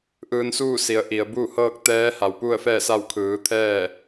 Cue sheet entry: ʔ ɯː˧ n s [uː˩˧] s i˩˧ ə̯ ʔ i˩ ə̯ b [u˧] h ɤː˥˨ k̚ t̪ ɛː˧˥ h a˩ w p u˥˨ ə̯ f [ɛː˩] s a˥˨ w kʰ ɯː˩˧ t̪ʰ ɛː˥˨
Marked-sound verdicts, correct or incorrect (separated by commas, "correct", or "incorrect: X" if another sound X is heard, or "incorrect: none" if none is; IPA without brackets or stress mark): incorrect: uː˥˨, incorrect: u˥˨, incorrect: ɛː˥˨